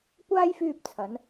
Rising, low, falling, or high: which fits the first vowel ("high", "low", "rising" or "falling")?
high